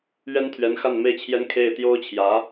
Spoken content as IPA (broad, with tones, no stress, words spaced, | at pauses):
ɥɛ˥nt̪ʰɥɛ˧˥n xa˥˧nme˥˩ɪ̯t͡ɕʰjɛ˥n kʰe˥˩ɪ̯ t̪jo˥ʊ̯t͡ɕʰjä˧˥